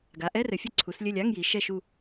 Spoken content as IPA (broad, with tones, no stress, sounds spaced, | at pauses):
ɡ a˩˧ ʔ ɛ˧˥˧ r ɘ˩˧ fʲ ɘ˦˨ ǀʰ u˩˧ s lʲ ɘ˦˨ lʲ a˧˥˧ ŋ j i˩˧ ʃ ɛ˦˨ ʃ u˦˨